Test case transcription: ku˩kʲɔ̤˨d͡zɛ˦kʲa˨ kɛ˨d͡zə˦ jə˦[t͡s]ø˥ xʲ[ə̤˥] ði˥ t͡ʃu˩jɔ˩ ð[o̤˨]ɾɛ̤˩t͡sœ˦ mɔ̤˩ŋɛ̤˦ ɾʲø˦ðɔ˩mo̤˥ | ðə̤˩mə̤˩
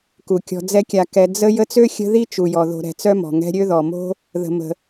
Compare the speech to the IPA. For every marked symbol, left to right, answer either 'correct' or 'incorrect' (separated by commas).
correct, incorrect, correct